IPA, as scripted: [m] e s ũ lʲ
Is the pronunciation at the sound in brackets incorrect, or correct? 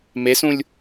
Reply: correct